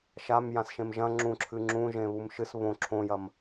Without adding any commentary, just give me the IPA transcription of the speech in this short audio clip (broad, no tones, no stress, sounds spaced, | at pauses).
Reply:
ʃ a m j ã s ʃ ẽ m ʒ ɐ̃ ŋ͡ǁ ũ ǁʰ ɨ ŋ͡ǁ ũ ʒ ẽ β u m ʃ ɨ s β õ ǁʰ õ j ɐ m